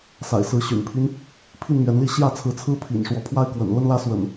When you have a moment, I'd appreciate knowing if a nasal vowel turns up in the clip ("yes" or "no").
no